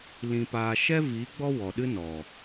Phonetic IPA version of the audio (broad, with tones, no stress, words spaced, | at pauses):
lĩ˧paː˧ ʃɛ˦vi˨˦ ɡ͡bɔ˦ wɔ˨ɗɨ˦nɔ˨